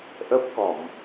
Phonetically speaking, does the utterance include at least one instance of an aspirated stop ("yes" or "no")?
no